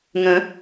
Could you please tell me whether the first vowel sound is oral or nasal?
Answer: nasal